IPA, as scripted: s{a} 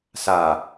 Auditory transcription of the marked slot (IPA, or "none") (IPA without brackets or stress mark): a